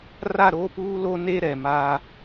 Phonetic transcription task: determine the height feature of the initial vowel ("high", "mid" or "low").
low